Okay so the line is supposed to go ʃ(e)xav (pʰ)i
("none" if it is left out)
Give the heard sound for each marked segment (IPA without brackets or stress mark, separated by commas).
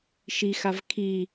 i, kʰ